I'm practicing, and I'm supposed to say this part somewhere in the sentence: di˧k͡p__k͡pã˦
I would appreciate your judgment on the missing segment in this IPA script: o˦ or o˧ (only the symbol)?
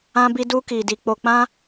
o˧